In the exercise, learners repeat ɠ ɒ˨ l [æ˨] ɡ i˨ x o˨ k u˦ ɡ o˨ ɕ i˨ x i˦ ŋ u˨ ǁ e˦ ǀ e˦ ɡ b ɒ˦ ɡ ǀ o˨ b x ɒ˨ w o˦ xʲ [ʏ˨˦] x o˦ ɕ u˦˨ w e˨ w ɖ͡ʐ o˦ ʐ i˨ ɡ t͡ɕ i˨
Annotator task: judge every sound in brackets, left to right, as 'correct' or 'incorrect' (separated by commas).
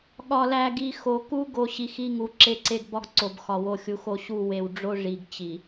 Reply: correct, incorrect